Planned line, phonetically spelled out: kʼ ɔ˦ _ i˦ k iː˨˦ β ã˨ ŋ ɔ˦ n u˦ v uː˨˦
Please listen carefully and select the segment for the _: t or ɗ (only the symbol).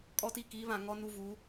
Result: t